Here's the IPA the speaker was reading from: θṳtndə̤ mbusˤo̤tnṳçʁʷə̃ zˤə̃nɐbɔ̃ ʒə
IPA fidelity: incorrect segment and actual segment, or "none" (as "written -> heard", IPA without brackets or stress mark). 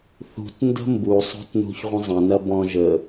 none